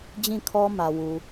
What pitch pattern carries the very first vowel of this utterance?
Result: falling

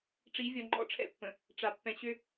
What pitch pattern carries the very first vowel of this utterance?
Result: rising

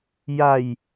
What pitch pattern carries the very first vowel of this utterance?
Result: low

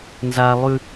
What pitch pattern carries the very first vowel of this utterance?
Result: high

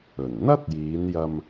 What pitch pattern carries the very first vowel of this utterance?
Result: low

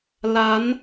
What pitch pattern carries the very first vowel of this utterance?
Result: rising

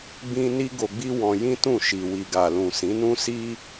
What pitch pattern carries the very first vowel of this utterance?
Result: high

